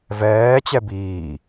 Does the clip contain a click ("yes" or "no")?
no